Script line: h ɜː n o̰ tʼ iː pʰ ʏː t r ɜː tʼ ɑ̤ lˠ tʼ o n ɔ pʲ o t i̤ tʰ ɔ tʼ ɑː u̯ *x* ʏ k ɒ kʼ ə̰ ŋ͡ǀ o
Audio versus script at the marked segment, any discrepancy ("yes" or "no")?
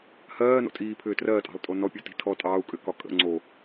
yes